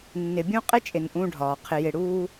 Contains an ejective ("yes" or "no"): yes